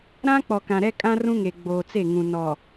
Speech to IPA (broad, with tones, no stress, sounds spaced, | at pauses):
ɾ ã˦ k͡p ɔ˨ k ã˨ ɾ ɛ˦ kʼ ã˦ r ũ˦ ŋ e˨ ɡ͡b oː˨ t͡s e˦˨ ŋ ũ˨ n ɔ˨